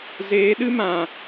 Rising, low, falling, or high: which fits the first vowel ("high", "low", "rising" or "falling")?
rising